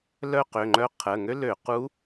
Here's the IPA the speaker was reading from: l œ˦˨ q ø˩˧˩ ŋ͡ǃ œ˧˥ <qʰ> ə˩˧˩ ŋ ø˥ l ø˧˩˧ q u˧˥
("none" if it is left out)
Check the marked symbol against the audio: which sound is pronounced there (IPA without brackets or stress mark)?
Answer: qʰ